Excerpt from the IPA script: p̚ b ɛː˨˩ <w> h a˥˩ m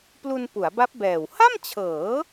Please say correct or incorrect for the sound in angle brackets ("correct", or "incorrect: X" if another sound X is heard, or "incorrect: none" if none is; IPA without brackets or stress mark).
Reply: correct